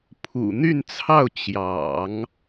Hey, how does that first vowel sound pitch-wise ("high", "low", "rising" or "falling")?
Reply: low